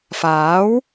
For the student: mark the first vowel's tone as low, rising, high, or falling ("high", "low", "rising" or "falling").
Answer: rising